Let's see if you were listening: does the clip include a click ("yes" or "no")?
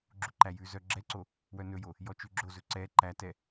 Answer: yes